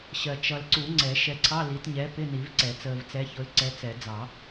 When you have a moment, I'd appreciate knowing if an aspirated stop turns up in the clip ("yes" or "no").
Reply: yes